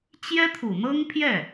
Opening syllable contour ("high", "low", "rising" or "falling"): high